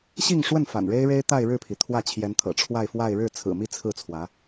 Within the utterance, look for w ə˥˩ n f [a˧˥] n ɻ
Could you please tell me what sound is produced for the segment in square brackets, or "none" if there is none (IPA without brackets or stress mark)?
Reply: a̰˨˩